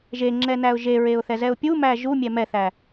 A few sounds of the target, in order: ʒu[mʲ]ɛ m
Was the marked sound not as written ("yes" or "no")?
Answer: no